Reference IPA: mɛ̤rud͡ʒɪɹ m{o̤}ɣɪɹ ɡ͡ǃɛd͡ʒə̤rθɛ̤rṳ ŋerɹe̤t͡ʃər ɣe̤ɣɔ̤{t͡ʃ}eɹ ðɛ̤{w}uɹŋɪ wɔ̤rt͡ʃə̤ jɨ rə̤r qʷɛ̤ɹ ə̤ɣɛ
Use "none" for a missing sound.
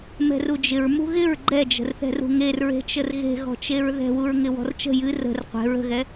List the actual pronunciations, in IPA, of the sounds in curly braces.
ṳ, t͡ʃ, w

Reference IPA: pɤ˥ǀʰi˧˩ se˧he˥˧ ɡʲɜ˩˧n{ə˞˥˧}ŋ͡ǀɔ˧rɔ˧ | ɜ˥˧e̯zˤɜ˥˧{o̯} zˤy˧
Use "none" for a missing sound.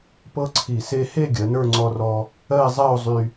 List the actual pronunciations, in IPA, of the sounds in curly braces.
ə˞˥˧, o̯

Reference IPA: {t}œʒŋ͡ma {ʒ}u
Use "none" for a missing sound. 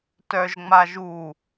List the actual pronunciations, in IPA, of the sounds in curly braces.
t, ʒ

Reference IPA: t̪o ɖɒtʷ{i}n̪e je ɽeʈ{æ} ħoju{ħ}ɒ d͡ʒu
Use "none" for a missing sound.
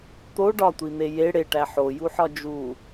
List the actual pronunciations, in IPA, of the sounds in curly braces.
i, æ, ħ

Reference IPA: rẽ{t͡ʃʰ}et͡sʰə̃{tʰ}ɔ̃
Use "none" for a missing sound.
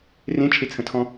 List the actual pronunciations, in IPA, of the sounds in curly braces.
t͡ʃʰ, tʰ

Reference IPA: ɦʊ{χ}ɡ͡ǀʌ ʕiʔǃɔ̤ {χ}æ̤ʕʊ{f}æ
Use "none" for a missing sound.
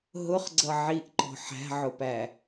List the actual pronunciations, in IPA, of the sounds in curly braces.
χ, ħ, p

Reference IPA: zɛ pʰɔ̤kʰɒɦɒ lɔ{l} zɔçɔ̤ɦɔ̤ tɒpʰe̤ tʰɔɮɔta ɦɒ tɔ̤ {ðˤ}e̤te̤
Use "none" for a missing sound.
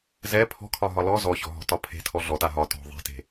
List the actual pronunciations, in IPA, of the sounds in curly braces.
none, ðˤ

